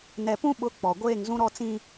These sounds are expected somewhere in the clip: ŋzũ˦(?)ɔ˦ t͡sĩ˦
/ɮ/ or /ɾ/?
ɾ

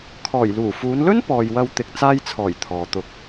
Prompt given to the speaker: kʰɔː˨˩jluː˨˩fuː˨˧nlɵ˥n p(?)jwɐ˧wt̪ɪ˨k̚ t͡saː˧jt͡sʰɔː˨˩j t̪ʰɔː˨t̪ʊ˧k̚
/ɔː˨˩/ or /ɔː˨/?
ɔː˨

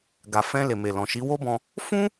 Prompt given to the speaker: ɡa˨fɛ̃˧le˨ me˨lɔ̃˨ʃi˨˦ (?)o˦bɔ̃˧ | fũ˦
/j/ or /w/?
w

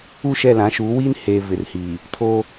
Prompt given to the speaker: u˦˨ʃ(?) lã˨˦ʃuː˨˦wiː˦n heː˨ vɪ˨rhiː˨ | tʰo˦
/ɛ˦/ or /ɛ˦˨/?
ɛ˦˨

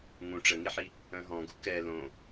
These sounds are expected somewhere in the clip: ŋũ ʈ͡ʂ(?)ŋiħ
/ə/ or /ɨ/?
ə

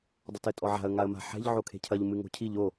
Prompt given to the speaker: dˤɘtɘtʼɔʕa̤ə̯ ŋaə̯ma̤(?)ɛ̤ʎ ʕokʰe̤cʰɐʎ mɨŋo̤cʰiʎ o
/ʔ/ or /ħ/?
ħ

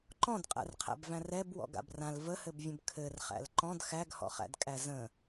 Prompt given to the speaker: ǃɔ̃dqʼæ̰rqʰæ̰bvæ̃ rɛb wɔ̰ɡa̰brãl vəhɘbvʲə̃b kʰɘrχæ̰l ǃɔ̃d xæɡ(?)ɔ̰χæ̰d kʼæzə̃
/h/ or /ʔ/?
h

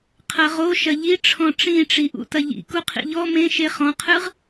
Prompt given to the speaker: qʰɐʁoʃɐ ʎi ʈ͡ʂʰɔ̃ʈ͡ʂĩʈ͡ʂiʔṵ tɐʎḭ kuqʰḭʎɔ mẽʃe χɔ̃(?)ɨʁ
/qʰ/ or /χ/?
qʰ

